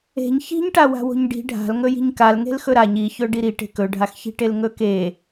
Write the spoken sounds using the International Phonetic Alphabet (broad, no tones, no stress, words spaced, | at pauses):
e̤ɲ çi̤ɲʈawa̤wo̤ɲ ɖi̤ ɖʱa̤l ŋɵji̤ɲkal ŋe̤lxɵɾaɲ içɵ ɖiɾiʈe̤k ɵɖʱaxçi̤ʈel ŋɵke